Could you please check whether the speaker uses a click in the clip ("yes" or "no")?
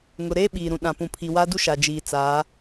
no